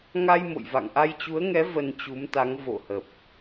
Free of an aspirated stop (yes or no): yes